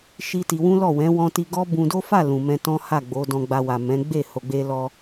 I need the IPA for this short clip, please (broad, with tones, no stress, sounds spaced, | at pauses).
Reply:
ʃ i˦ t i˧ w ũ˦ l ɔ˦˨ w ɛ̃˨˦ w ɔ̃˧ t i˧ ɡ ɔ˦ b ũ˧ d o˦ f a˦˨ l ũ˨ m ɛ̃˧ t ɔ̃˦ h a˦˨ ɡ͡b o˨˦ d ɔ̃˧ ɡ͡b a˧ w a˨ m ɛ̃˨˦ ɡ͡b e˦˨ h o˨ ɡ͡b e˧ l ɔ˧